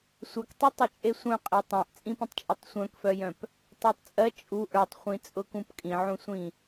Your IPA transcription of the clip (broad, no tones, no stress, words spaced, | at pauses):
sʷœktˤi tˤœt͡ʃʼesʷœ̃qʼe tˤãʔt͡sʼĩpĩtˤt͡ʃʼetˤ sʷœ̃kfœjœ̃p | tˤœtˤt͡sʼɜ t͡ʃʼu ʔə˞tˤχʷĩt͡sʼʊkũp kʼĩʕũsʷĩ